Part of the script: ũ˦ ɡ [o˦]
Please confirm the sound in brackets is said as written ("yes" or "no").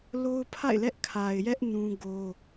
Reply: yes